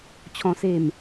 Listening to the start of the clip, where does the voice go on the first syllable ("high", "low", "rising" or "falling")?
high